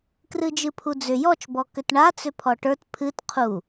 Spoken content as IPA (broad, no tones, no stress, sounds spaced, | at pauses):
k r ɨ d͡ʒ ɨ pʰ u d͡z ʏ j ɔ t͡ʃ b ɔ k ʏ t ɳ a t͡s ʏ pʰ ɔ ʈ ə˞ t pʰ ɨ t qʰ u